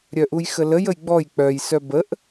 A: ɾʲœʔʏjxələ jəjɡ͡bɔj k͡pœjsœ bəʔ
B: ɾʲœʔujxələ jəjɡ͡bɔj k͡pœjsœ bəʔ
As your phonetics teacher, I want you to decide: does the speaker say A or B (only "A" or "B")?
B